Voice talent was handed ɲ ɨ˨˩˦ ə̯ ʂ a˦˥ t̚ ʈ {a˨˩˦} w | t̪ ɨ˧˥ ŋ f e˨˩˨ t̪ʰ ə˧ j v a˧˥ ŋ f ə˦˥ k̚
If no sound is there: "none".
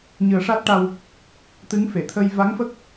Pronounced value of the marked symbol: a˧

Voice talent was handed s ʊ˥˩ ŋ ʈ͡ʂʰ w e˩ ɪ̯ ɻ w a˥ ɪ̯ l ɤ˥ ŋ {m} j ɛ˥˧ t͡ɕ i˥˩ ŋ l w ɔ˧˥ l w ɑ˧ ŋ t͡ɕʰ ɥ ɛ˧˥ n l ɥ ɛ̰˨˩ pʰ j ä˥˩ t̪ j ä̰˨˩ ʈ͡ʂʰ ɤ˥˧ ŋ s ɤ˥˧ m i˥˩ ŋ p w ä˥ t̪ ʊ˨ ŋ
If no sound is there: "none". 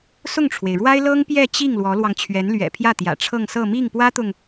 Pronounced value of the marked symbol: p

